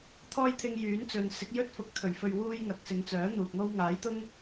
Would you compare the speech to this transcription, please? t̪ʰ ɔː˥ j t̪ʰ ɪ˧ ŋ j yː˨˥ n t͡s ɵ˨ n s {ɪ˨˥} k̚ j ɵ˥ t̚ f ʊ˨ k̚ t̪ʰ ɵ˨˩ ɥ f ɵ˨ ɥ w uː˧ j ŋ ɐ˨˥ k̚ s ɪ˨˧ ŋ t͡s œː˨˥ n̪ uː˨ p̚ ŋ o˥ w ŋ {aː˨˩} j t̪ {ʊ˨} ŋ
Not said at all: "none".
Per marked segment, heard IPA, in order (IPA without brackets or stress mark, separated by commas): ɪ˨˥, aː˨˥, ʊ˥